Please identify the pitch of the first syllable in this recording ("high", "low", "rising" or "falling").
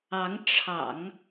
rising